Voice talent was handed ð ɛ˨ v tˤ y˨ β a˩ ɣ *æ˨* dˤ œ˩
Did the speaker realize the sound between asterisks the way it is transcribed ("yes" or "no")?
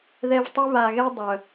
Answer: no